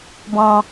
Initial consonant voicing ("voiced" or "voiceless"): voiced